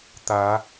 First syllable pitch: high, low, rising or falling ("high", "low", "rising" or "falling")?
rising